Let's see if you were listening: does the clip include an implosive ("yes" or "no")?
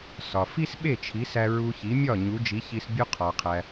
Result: yes